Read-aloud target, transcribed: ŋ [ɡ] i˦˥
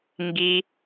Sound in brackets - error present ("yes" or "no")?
no